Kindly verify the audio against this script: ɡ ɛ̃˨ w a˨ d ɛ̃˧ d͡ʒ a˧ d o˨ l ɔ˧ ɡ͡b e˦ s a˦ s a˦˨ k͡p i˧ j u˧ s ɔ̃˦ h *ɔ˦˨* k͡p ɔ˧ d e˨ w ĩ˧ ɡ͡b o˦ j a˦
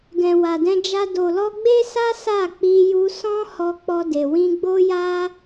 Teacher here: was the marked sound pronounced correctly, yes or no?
no